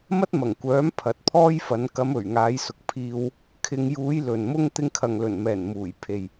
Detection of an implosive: absent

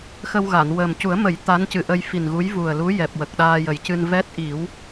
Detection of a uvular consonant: absent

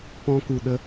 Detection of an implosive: present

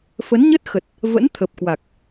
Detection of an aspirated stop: present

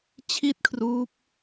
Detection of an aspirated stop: present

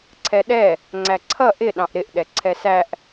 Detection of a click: present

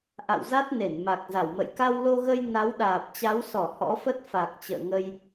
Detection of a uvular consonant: absent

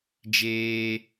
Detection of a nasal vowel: absent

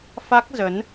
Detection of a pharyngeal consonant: absent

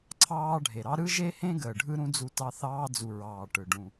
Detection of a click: present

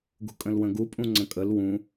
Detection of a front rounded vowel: absent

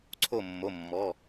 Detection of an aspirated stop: present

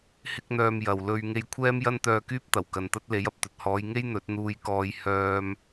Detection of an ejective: absent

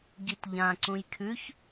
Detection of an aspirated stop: present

